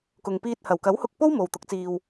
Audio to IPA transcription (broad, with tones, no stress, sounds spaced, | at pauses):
k ʊ˨ ŋ p iː˧ t̚ h ɐ˨˩ w k ɐ˨˥ w h ʊ˧ k̚ p o˥ w m o˨ w t̪ ʊ˨˥ k̚ t͡s iː˧ w